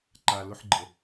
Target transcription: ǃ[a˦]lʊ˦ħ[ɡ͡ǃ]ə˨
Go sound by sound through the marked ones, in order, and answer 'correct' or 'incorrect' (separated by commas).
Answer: incorrect, correct